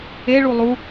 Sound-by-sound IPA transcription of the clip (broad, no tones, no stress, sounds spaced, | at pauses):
e ɭ u lˠ u